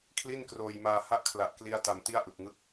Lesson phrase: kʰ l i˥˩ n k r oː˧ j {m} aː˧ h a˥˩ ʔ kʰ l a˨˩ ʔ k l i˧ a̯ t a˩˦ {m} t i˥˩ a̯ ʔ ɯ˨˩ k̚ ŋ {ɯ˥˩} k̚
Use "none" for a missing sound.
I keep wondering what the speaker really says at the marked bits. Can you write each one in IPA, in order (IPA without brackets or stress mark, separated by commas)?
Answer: m, m, ɯ˥˩